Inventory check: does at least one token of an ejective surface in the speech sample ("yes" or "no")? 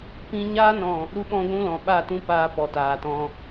no